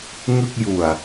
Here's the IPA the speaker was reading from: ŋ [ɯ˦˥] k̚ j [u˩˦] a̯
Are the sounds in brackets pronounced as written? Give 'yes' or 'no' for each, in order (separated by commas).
no, no